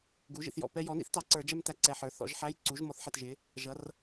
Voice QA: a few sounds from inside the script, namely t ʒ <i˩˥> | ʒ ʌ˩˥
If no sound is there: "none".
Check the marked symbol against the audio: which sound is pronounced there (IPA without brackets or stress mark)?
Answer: ɪ˩˥